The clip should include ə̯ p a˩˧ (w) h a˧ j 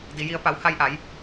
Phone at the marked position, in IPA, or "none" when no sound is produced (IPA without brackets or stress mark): w